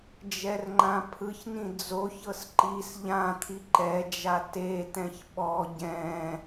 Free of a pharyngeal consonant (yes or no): yes